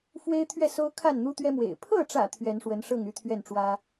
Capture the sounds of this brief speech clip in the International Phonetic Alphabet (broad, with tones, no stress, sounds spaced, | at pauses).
f w e˦ ɪ̯ t̪ʰ ɥ ɛ˥˨ s o˦ ʊ̯ kʰ a˥˨ n n̪ u˦ t̪ ɥ ɛ˦ m w ḛ˨˩ ɪ̯ pʰ ɤ˥˨ ʈ͡ʂ ä̰˨˩ t̪ʰ ɥ ɛ˨˦ n ʂ w ə˨˦ n ʂ ɤ˥˨ ŋ y˦ t̪ʰ ɥ ɛ˥˨ n ʈ͡ʂ w ä˦